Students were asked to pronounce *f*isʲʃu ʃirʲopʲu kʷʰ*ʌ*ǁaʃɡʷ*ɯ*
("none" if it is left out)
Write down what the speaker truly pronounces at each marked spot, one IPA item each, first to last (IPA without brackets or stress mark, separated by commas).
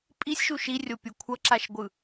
pʼ, ʌ, ɯ